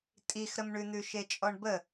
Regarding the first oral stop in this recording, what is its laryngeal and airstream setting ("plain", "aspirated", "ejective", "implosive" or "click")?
ejective